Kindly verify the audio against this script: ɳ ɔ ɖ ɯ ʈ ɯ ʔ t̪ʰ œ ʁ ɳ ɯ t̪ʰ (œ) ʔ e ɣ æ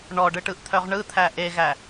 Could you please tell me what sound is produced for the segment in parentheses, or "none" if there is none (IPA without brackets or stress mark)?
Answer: æ